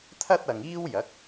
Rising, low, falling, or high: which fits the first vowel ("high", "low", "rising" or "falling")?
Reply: high